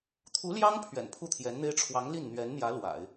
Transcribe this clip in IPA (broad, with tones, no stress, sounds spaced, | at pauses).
t̪ʰ u˧˥ l j ɑ˥ ŋ pʰ ɥ ɛ̰˨˩ n pʰ u˥˩ t̪ʰ j ɛ˧˥ n n̪ e˥ ɪ̯ ʈ͡ʂʰ w ɑ˧˥ ŋ l i˥˩ n n̪ ɥ ɛ˧˥ n n̪ j ä˧˥ l w a̰˨˩˦ ɪ̯